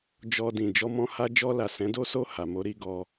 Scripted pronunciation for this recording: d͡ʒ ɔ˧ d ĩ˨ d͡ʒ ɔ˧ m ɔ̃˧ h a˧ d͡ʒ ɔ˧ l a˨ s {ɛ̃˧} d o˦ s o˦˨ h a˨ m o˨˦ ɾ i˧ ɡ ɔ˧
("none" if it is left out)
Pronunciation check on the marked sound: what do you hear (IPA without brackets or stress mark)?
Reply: ɛ̃˨˦